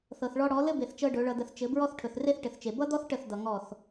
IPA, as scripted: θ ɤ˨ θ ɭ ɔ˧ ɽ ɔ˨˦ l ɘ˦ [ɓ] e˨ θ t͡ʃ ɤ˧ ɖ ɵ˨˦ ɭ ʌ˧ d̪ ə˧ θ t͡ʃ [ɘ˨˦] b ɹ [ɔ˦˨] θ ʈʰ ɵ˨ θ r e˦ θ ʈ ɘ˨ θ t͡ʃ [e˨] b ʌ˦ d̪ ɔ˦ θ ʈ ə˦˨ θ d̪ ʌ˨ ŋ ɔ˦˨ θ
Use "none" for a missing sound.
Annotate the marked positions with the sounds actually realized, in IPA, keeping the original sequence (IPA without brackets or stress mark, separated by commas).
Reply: b, ɘ˨˦, ɔ˦, e˨